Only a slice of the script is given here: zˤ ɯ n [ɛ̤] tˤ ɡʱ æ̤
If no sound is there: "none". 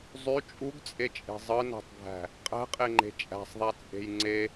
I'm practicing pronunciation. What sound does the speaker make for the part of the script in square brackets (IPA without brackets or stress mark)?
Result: æ̤